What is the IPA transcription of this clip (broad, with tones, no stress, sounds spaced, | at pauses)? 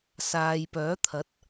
s aː˨ j p œː˨˥ t̪ʰ ɐ˨˥ t̚